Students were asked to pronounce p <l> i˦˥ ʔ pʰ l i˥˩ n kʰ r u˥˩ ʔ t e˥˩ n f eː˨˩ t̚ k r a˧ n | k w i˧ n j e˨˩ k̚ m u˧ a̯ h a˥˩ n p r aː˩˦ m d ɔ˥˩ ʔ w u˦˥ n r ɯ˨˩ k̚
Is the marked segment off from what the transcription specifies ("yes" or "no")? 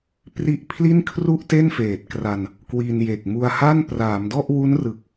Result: yes